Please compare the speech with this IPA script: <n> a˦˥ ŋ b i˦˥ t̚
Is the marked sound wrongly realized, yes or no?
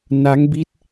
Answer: no